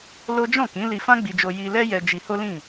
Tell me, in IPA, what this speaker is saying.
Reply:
l o˦ d͡ʒ ɔ̃˦˨ k ĩ˨˦ l i˧ f ã˦ ɡ͡b i˧ d͡ʒ o˧ j i˧ l ɛ˦ j ɛ˧ d͡ʒ i˧ h o˦ l ĩ˦˨

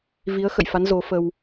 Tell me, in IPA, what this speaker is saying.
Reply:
v i˨˦ ə̯ x ə̰˧˨ j f a˨˦ n z o˨˦ f ə˧ w

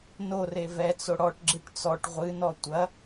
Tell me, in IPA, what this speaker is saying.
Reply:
n o r e v ɛ t͡s o ɽ ɔ ʈ ɡ͡ǁ ɨ ʈ t͡s ɔ ʈ ʁʷ ɨ n ɔ tʷ ɐ

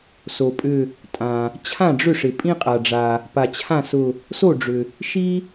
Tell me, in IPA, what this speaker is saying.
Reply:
s o˩ pʼ ʏ˧˩ | tʼ ã˩ | t͡ɕʰ ã˥˩ ɖ͡ʐ ʏ˥˩ ʂ ɪ˩ pʼ ĩ˥ qʼ a˩ ɖ͡ʐ a˩ | p a˩ t͡ɕʰ ã˥˩ s ʊ˧˩ | s o˥˩ ɖ͡ʐ ʏ˩ | ʃ i˥

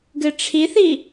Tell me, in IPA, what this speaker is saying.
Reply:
ɡ ɨ ʈ͡ʂʰ i θ i

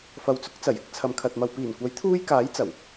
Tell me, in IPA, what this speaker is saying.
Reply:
f ɐ˨ w t͡s ʊ˨˥ k̚ t͡s ɐ˨˩ j ɪ˧ k̚ t͡sʰ ɐ˨ m kʰ ɐ˨ t̚ m ɐ˨ w p iː˨˩ n kʷ ɐ˨˥ j t̪ʰ uː˥ j k aː˨˥ j t͡s ɐ˨˩ w

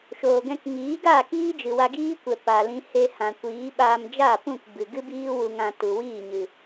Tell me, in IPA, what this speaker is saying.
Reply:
ʃ oː˨ ɡ ɛ̃˧ k ŋ iː˨˦ ɡ aː˦˨ k iː˦ d͡ʒ ɨ˨ w a˧ ɡ iː˦ kʷ ɛ˨ p a˨ l ĩ˧ h e˧ h ã˨ kʷ iː˨˦ ɓ aː˧ m d͡ʒ a˦˨ p ũ˦˨ k b ɨ˨ ɡ ɨ˦ b iː˦ w u˧ ŋ ã˧ t u˨ w iː˦˨ ɲ ɨ˨

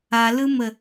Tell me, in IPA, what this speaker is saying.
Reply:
a l ɯ m ə

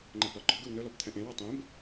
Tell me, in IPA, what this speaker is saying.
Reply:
ŋ͡ǃ ɛ b l ɒ ɡ͡ǃ ɔ ɡ ɵ w n ɵ l ɔ b t̪ʰ ɛ̃ ʔ ẽ w ɒ tˤ ẽ b

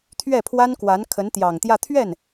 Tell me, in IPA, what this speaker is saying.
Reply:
t̪ʰ ɥ ɛ˥˩ pʰ w a˥ n k w a˧˥ n kʰ ə˧˥ n t̪ j ɑ˨˩ ŋ t̪ j ä˥˧ t̪ʰ ɥ ɛ˥˩ n

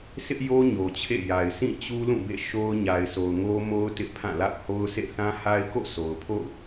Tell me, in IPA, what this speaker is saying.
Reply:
sʰ ɪ˦ ʔ j o˦ ɲ o˨ t͡ɕʰ ḛ˦˨ j a˨ ɪ̯ s ĩ˦˨ t͡ɕ u˦ l ũ˦˨ b ḛ˦˨ ʃ o˦ ʊ̯ ɲ a˨ ɪ̯ sʰ o˨ ʊ̯ ŋ o˦ m o˦ ʊ̯ t ɪ˦ ʔ pʰ ã˦˨ l a̰˦˨ ʊ̯ h o˦ ʊ̯ sʰ ḛ˦˨ θ ã˦ h a˦ ɪ̯ k o̰˦˨ sʰ o˨ ʊ̯ pʰ o̰˦˨ ʊ̯

